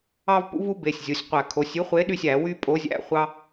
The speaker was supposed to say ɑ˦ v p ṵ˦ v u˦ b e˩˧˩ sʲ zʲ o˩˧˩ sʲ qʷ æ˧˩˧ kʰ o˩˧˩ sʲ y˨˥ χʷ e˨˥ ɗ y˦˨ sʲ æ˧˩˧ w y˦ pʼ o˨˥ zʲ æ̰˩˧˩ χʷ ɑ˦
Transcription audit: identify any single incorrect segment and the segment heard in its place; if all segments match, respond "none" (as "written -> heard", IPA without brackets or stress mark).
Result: none